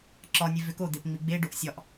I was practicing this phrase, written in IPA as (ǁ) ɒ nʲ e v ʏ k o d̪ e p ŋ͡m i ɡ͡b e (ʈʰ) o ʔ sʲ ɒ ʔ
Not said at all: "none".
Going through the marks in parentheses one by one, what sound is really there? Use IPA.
ǁ, ɖ

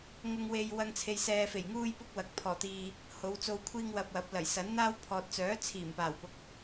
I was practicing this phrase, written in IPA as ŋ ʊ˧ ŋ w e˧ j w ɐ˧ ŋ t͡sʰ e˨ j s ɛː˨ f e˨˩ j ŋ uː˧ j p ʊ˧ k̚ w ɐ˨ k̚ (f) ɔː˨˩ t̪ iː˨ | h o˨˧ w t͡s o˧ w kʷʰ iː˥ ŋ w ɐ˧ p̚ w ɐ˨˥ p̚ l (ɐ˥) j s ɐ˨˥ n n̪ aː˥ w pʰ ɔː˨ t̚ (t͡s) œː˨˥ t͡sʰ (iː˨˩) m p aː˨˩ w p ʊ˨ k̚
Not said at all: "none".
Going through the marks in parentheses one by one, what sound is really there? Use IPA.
pʰ, ɐ˨˩, t͡s, iː˨˩

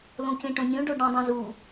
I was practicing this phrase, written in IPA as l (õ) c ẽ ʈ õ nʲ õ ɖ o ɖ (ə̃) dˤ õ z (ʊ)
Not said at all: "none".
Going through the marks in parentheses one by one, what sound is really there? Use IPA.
õ, ɛ̃, u

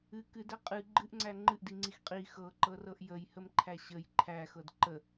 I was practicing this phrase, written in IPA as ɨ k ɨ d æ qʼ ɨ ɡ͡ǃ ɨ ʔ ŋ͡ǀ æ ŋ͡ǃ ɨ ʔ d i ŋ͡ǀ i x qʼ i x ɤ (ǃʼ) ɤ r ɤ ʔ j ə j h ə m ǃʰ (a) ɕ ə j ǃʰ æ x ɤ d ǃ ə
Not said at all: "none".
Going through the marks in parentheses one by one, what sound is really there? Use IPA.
ǃ, æ

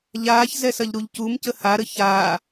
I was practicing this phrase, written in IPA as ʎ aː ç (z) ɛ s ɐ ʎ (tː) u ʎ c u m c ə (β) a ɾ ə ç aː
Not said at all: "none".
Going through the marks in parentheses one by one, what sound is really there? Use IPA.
z, ɾ, h

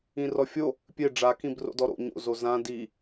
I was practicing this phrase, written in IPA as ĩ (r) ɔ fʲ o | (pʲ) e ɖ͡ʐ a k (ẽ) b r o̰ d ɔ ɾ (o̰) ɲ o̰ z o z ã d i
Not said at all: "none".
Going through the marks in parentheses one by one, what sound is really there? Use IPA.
r, pʲ, ĩ, o̰

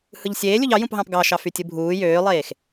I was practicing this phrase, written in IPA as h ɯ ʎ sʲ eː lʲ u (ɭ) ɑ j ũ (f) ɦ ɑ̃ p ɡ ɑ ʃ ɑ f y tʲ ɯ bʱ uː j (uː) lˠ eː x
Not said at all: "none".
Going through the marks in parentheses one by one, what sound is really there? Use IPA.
ʎ, p, øː

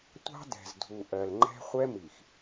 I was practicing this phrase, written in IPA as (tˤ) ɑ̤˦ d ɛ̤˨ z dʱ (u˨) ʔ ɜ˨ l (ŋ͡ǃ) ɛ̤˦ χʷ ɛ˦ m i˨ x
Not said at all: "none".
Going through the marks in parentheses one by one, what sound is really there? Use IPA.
tʷ, u˨, ŋ͡ǃ

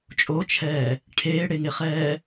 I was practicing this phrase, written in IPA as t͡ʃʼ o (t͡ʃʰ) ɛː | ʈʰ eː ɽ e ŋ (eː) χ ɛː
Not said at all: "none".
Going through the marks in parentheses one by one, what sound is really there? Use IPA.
t͡ʃʰ, e

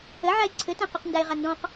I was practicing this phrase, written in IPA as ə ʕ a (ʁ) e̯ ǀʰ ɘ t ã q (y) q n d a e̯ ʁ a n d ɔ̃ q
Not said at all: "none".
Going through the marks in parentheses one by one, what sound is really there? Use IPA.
none, y

